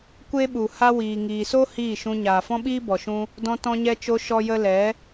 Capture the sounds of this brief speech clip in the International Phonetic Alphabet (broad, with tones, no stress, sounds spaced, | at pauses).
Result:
kʷ e˦ ɓ u˨ h a˧ w iː˨ ŋ iː˨ s o˦ h iː˦˨ ʃ ũ˧ ɲ aː˨ f ɔ̃˦ ɓ iː˦ b ɔ˨ ʃ ũ˦ | d ɔ̃˧ t ɔ̃˧ ɲ ɛ˧ t͡ʃ o˧ ʃ ɔ˦ j ə˦ l ɛ˨˦